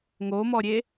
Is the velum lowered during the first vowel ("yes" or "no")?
no